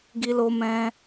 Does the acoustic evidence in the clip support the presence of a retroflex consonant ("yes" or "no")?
no